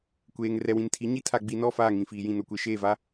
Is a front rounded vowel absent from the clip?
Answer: yes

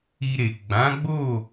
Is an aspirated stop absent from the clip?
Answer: yes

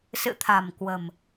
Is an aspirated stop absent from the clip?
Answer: no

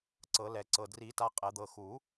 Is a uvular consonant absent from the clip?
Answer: no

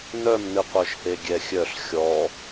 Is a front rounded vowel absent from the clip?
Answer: no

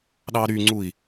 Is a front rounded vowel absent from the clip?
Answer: no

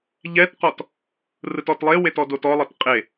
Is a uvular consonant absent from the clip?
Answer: no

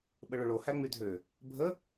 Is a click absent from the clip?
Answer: yes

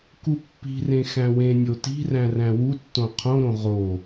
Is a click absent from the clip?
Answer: yes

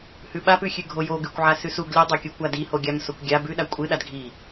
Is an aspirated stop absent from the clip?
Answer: yes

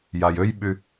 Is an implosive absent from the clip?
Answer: no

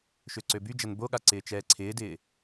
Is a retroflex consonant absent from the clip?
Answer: yes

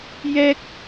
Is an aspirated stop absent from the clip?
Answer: yes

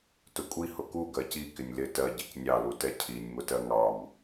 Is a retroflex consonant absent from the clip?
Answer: yes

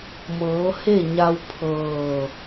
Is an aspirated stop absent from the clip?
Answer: no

